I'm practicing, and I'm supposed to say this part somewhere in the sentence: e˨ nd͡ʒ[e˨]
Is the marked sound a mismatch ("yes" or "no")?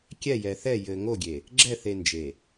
no